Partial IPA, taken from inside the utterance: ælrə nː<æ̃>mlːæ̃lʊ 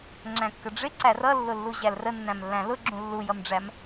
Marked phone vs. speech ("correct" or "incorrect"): correct